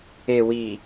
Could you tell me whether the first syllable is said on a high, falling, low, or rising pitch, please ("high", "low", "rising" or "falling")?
low